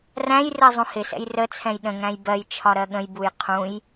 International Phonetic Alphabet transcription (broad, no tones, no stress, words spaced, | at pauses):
ræ̃jrɜ zˤũhɪsɛ̰j rət͡sʰɛ̃j ɗə̃ŋæ̃j bɜj t͡ʃʰɒɾɜɠə̃jbuj qʰũj